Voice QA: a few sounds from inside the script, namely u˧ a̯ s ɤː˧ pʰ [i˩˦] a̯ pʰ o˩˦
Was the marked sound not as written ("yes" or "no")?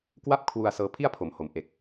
yes